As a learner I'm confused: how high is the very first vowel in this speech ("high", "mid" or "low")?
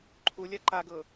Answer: high